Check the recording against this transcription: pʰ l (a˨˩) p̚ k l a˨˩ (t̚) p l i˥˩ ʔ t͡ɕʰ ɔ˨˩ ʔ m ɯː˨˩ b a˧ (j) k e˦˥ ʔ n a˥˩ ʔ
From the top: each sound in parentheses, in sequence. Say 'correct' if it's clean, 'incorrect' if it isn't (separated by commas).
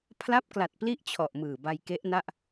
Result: incorrect, correct, correct